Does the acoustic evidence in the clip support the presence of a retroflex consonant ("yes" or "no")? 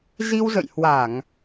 no